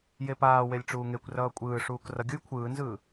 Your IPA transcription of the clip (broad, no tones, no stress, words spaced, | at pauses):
jepaːwelʲ ʈ͡ʂuːŋekʷrʌː kʷʼɯːʂuːk rʌɡʲuj kʷʰɯːnzɯː